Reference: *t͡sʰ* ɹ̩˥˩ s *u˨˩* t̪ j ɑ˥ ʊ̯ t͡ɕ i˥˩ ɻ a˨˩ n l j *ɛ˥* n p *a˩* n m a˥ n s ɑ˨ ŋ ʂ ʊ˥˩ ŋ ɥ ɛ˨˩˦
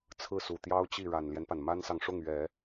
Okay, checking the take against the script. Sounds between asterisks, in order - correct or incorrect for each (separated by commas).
correct, correct, incorrect, correct